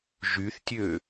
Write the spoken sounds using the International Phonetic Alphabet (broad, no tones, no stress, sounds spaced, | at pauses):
ʒ y θ tʲ ø